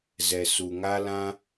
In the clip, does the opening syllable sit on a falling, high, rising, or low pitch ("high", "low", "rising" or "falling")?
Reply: low